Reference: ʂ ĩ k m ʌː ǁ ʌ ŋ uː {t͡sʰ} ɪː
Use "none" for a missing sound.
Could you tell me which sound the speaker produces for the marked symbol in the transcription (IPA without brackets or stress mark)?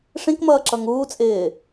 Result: t͡sʼ